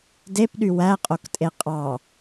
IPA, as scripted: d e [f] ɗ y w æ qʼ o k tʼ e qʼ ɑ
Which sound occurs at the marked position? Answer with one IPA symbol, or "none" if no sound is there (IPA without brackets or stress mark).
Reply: p